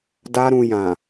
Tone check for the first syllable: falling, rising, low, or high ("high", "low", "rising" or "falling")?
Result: high